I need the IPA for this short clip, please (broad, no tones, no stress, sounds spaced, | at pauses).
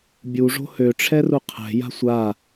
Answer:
bʲ u ʐ o̤ h ø ʈ͡ʂʰ ɛ r u qʰ ɛ̤ j a̤ sʷ a